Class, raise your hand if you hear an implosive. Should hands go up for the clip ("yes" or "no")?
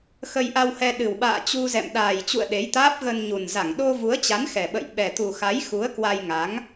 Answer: yes